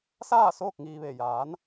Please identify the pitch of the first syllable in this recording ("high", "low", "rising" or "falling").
falling